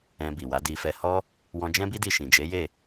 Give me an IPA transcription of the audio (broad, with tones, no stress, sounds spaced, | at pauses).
ɛ̃˧ b i˨ w a˨˦ d i˧ f ɛ˧ h ɔ˦ | w ɔ̃˧ d͡ʒ ɛ̃˦ b i˦ d i˦˨ ʃ ĩ˨ d͡ʒ e˨˦ j e˦˨